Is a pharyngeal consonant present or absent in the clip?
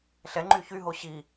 absent